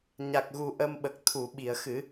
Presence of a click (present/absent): absent